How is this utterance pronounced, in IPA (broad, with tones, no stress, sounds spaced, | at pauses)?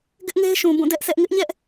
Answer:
ɡ ɪ˦ ʔ ŋ e˦ ɪ̯ ʃ ũ˨ b ũ˦˨ d ɛ˦ ʔ sʰ ɛ˦ ʔ ŋ ɪ˦ ʔ ɲ ɛ˦ ʔ